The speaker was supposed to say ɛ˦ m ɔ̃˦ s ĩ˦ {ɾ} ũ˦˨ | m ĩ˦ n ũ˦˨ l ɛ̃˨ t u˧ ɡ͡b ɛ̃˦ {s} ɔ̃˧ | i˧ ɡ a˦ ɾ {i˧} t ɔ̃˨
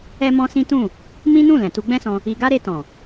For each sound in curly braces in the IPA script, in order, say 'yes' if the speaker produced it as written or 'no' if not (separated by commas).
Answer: no, yes, no